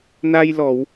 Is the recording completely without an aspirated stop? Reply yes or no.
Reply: yes